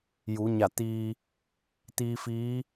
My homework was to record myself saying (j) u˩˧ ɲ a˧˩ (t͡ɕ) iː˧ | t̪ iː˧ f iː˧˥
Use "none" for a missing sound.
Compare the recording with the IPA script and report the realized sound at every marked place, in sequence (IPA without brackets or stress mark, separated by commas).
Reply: j, t̪